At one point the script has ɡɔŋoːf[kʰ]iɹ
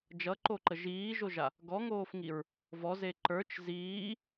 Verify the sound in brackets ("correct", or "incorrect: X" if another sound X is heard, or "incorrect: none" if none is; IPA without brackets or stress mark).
incorrect: ŋ